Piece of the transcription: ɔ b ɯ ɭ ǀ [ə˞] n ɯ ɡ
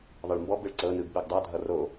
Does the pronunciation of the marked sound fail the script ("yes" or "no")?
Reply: yes